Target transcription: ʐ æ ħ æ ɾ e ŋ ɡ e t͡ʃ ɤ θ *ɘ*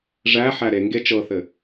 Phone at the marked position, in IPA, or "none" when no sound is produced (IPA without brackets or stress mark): ɘ